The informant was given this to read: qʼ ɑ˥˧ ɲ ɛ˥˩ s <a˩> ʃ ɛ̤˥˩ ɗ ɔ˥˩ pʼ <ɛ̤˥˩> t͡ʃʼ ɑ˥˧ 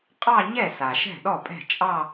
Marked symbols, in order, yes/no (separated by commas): yes, yes